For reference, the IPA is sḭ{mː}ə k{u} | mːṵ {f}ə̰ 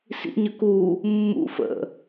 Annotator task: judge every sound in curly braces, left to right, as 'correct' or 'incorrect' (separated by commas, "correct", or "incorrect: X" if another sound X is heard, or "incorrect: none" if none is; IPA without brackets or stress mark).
incorrect: ɲ, correct, correct